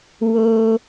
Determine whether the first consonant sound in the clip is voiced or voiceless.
voiced